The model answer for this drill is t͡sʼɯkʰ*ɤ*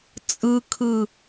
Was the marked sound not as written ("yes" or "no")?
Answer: yes